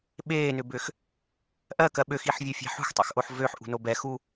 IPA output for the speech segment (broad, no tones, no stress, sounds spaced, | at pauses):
ɓ eː n ʏ b ʏ x | ʔ ɜ k ɜ ɓ ø x i ħ vʲ o fʲ a̤ ħ ṳ x tˤ ɛ̰ x ʔ o ħ v ø ħ ʔ ṳ n o b ɛ x u